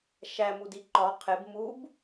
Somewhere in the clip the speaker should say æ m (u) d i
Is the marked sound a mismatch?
no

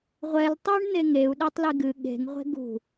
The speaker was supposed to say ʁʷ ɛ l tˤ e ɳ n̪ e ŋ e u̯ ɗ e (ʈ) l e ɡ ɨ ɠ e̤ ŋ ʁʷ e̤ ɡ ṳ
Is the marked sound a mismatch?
yes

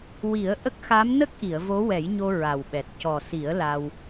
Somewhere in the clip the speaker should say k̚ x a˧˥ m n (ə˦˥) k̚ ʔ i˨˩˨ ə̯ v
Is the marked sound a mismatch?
no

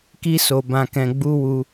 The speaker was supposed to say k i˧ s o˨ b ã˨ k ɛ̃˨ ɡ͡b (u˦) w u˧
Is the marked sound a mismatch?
yes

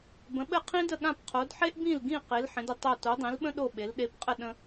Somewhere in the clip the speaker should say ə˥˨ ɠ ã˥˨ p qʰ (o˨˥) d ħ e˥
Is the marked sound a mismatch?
no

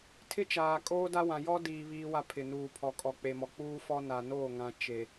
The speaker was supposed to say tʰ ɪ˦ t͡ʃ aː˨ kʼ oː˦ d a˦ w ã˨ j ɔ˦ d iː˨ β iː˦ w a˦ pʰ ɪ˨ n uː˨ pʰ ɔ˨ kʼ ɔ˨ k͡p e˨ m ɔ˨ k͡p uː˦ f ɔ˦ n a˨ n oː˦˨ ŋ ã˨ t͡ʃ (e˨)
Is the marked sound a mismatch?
no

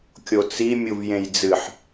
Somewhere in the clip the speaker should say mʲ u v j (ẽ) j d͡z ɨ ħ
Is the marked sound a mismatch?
no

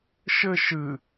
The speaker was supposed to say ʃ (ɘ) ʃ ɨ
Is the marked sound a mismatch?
no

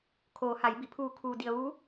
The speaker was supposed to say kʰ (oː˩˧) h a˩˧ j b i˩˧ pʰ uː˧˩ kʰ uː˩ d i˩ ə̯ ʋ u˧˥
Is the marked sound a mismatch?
no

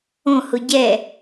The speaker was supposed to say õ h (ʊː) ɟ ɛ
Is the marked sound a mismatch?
yes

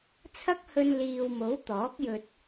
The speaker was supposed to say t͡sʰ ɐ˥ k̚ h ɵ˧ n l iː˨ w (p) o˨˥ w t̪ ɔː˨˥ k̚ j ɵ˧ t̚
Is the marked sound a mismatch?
yes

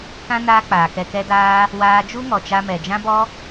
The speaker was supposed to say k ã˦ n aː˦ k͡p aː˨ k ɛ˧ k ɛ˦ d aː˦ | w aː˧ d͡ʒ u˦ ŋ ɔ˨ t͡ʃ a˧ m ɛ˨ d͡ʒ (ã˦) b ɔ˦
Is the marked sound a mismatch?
no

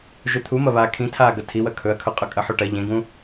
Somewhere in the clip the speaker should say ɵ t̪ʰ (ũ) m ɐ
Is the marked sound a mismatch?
yes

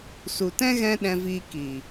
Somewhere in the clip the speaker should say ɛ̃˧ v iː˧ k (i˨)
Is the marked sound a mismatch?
no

